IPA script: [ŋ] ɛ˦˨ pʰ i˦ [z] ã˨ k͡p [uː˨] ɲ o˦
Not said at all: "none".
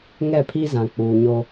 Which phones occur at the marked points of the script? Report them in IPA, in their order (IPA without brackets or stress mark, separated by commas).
ŋ, z, uː˨